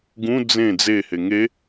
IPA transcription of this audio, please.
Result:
ɡ ũ d͡z ẽ d͡z e h e ŋ e

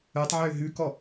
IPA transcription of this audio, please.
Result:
œ tˤ ʕ ø ɦ ʉ k ɔ

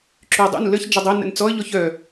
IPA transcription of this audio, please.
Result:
ǁ y dˤ ṵ n l ə ç d͡ʒ ə dˤ e n ə̰ n t͡s ɔ ə̯ ʎ ɔ ç œ

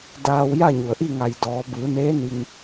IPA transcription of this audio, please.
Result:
d aː˧ w j a˥˨ ɲ u˩ ə̯ ʔ i˥˨ ŋ a˧˩ j d ɔː˩˧ b ɯː˩˧ n eː˧˥ n i˧ ŋ

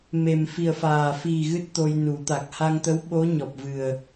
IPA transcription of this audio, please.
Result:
m e˨˩ m f i˨˩ ə̯ f aː˨˩ f i˨˩ ɣ ɨ˦˥ t̚ t̪ o˧ j n u˨˩˦ t̪ a˨˩ k̚ h a˧ ŋ t̪ ə˧˥ w ɓ o˧˥ ɲ ɔ˨˩ p̚ v ɨ˨˩ ə̯

